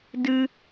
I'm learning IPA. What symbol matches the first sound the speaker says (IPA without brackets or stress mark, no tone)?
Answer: d